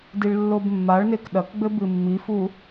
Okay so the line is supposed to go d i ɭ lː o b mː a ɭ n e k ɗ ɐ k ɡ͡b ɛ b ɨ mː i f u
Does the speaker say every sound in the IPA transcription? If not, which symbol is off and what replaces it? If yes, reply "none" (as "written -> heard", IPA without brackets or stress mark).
ɛ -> ɘ